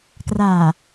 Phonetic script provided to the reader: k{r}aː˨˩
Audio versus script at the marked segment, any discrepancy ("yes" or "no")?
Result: no